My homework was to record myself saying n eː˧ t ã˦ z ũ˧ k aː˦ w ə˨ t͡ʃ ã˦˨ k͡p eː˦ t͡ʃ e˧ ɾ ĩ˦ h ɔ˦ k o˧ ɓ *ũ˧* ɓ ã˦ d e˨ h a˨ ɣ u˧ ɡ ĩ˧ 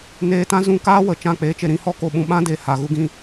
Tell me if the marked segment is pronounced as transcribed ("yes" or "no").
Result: yes